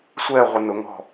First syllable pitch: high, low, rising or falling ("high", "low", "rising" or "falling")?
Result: falling